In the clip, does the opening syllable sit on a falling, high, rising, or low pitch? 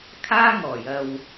high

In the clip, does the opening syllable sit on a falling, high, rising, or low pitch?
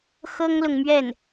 high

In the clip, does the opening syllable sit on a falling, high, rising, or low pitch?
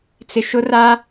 low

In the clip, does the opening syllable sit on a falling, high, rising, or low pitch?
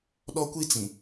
high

